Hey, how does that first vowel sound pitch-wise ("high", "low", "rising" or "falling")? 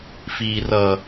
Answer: low